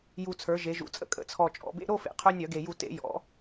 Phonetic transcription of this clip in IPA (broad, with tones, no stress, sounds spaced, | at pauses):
j u˨˩ t͡sʰ ə˞˩˧ ʒ e˩˧ ʒ ṵ˨˩ t͡sʼ ə̰˧ kʼ ə̰˩˧ t͡sʰ ɔ˨˩ t͡ʃʼ ɔ̰˩˧ b ḛ˧ ɾ o˥˨ f ḛ˨˩ qʰ œ˧ nʲ œ˧˩˧ ɡ e˨˩ j u˧˩˧ t ḛ˧˩˧ j ɔ̰˩˧